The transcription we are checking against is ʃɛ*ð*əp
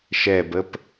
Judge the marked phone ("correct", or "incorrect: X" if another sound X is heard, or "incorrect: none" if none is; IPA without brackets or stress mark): incorrect: b